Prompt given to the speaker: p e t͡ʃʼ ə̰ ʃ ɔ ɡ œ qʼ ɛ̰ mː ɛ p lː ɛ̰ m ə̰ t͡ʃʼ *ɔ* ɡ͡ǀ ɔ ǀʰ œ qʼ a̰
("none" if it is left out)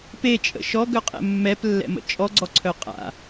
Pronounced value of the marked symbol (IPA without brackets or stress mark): ɔ